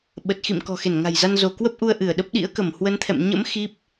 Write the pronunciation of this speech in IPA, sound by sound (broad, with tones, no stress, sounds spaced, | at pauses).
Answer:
ɓ ə˨˩ t̚ x ḭ˧˨ m k ɔ̤˨˩ x e˧˩ n ŋ a̤˨˩ j z a˧ n z o˧˩ k w ə˦˥ p̚ ʔ u˧ ə̯ ʔ ɨ˧˩ ə̯ ɗ ə˦˥ p̚ ɗ ḭ˧˥ ə̯ k ə˧˩ m h w ə˨˦ n t̪ʰ ɛ̰˧˨ m ɲ ə̰˧˥ m x i˦˥ p̚